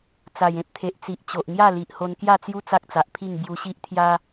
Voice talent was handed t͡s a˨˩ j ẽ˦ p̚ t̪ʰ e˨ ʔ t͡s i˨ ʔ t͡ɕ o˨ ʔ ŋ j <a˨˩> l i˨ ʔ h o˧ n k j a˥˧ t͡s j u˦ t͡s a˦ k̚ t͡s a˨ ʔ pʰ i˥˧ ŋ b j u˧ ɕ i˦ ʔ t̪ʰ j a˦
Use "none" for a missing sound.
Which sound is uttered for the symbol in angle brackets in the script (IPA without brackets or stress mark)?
a˥˧